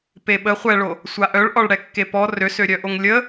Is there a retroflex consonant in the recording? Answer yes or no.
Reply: yes